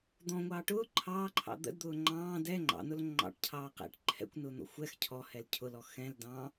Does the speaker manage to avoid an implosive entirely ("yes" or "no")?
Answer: yes